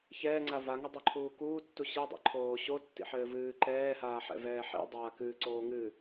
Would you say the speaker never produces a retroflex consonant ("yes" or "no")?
yes